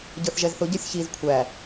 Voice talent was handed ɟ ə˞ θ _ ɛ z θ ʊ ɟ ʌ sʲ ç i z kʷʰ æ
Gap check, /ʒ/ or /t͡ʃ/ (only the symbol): ʒ